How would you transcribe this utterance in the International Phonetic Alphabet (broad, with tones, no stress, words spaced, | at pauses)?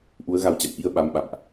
ʔu˨˦ə̯ɣa˨˦wt͡ɕa̰˧˨m ʔi˧ə̯ɓa˨˦m ɓa̰˧˨mʔ